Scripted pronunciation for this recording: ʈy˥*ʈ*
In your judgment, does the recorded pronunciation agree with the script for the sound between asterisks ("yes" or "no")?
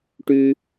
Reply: no